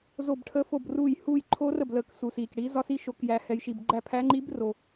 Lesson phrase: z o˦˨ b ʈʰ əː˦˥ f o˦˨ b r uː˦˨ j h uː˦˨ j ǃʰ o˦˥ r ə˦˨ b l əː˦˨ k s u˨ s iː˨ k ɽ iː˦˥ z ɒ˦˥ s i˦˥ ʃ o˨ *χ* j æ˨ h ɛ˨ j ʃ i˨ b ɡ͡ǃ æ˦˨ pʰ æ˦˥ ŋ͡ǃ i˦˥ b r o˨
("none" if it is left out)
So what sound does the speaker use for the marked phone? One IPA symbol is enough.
k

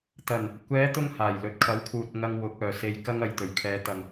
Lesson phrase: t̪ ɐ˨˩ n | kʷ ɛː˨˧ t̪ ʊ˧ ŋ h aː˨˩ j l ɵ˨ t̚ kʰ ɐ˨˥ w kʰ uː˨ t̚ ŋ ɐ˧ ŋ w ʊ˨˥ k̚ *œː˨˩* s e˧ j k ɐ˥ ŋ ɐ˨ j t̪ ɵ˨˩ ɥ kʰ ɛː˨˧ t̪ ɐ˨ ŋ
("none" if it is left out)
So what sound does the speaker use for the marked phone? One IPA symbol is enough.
œː˨˩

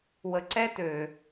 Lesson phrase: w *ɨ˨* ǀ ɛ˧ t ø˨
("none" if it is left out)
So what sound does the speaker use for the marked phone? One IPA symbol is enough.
ə˨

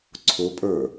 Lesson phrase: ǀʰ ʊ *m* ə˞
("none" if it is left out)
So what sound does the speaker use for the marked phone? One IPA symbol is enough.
pʼ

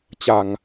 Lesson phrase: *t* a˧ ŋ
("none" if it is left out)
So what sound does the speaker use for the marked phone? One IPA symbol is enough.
t͡ɕ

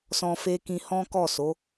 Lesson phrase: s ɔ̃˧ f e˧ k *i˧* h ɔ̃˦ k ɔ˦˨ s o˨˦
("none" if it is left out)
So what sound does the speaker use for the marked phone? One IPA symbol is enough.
ĩ˧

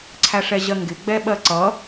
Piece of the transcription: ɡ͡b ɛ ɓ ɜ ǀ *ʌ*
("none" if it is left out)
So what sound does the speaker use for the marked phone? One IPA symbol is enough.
ʌ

